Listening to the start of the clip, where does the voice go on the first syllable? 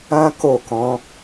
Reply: high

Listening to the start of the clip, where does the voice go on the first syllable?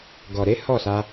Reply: low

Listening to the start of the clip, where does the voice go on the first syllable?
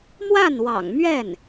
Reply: falling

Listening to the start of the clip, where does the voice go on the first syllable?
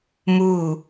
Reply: falling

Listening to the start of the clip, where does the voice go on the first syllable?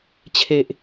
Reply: low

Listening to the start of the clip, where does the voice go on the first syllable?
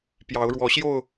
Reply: rising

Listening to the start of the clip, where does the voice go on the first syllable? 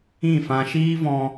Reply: falling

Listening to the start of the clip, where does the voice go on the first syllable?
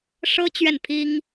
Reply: high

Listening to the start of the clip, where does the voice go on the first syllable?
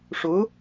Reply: rising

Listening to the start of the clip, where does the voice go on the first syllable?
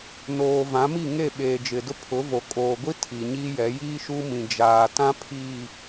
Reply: low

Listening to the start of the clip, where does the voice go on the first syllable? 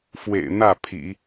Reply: low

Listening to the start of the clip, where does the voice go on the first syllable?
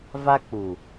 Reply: high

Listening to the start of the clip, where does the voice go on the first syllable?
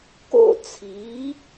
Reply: high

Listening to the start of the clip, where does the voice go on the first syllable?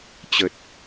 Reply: low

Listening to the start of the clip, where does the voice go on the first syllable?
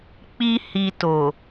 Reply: high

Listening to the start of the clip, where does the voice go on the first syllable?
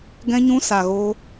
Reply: high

